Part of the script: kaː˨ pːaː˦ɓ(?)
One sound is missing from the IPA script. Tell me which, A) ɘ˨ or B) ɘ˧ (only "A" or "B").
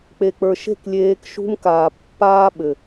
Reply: A